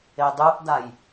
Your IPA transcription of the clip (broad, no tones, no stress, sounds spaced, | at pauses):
e dˤ u ʔ d a j